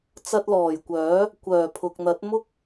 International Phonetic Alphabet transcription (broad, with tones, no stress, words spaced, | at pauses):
t͡sɐ˧t̚lɔː˨˩jkʷœː˨˥ | kʷœː˨˩pʰʊ˨k̚n̪ɐ˨˥t̚ mʊ˥k̚